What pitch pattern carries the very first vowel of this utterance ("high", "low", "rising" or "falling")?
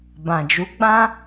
low